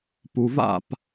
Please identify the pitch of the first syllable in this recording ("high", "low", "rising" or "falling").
low